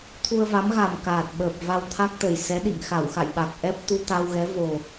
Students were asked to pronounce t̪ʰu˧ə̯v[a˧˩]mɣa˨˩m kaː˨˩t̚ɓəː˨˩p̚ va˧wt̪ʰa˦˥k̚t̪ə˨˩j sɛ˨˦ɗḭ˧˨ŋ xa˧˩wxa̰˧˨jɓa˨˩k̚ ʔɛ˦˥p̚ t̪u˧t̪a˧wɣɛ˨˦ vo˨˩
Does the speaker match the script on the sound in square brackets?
no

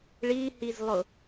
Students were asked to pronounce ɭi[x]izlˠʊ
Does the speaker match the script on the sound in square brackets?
no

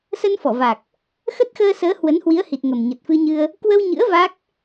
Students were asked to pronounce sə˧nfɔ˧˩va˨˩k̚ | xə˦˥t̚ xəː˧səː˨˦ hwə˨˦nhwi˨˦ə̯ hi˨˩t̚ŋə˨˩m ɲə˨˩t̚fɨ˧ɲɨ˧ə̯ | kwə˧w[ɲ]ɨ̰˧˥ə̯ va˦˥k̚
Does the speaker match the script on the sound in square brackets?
yes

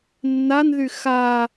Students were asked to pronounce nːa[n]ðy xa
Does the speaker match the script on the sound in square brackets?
yes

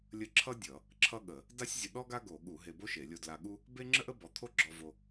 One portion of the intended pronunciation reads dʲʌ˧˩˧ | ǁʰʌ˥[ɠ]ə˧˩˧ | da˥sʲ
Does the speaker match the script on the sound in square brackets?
yes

